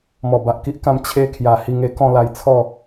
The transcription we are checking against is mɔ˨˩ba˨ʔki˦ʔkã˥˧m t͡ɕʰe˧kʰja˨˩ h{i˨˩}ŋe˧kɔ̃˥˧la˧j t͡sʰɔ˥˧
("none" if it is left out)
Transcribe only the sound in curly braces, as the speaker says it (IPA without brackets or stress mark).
i˧